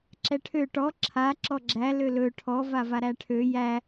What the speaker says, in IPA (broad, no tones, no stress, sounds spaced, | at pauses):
ǁ ɛ ʈʰ ø ʈ ɔ ǁʰ a ǁ ɔ ɡ͡ǁ æ l ø l ɵ ʈʰ ɔ v a v a ɾ æ ʈʰ ø j æ